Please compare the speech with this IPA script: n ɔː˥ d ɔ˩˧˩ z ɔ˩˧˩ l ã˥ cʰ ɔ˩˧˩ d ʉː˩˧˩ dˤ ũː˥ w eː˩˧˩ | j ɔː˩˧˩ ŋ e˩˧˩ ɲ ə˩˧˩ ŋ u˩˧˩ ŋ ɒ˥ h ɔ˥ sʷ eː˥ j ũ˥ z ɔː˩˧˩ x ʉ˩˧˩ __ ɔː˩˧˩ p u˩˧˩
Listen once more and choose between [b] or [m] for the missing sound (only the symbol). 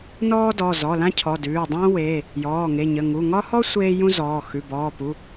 b